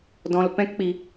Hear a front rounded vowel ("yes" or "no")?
no